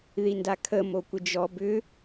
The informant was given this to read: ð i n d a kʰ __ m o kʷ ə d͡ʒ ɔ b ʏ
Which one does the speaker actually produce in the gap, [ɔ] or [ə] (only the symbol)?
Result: ə